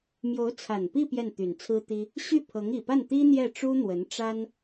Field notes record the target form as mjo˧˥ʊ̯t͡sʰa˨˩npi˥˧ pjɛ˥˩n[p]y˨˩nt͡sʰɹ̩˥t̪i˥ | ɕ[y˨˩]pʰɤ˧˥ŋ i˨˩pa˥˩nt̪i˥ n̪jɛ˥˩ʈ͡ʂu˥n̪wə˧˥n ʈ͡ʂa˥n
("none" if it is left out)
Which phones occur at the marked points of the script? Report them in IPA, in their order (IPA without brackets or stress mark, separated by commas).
t̪, y˥˩